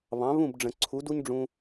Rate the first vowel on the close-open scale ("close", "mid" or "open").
open